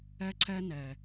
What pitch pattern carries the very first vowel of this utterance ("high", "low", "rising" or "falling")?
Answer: high